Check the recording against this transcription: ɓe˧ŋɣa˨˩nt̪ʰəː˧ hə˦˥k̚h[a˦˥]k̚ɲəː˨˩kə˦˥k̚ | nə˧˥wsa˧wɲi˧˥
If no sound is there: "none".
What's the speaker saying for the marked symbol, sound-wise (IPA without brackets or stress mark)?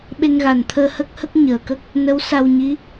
ə˦˥